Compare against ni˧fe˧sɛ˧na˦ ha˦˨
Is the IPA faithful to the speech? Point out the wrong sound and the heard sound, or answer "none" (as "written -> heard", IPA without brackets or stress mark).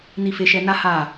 s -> ʃ